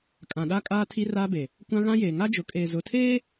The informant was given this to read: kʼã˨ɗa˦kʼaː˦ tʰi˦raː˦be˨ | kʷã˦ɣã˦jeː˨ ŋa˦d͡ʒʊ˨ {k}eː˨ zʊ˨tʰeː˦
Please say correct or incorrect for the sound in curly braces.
incorrect